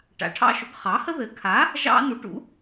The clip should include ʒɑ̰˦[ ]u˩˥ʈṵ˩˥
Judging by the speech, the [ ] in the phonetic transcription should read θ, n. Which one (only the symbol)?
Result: n